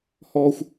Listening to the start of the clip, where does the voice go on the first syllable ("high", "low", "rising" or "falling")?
high